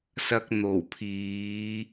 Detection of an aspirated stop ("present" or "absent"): present